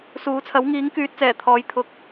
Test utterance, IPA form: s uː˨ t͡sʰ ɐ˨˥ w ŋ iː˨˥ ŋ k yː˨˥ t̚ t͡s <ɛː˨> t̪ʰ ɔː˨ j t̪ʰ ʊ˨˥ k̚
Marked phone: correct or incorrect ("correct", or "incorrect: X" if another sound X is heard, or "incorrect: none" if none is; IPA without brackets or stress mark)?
incorrect: ɛː˨˩